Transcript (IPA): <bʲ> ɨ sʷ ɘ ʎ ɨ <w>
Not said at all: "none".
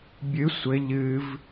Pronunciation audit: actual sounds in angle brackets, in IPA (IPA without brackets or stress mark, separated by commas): bʲ, v